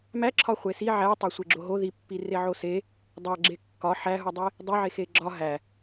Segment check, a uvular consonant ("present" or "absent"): present